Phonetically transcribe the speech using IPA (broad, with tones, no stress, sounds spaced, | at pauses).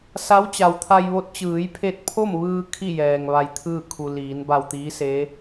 s a˧˥ w t͡ɕ a˩ w t̪ʰ a˧ j ʋ o˧˥ t̚ t͡ɕ ɯː˩˧ j pʰ e˧ t̚ pʰ o˥˨ m ʋ ɯː˧ kʰ i˥˨ j ɛː˩ ŋ ʋ a˧ j t̪ʰ ɯː˥˨ kʰ u˩ l iː˩˧ n b a˧ w t̪ iː˧˥ s e˧˥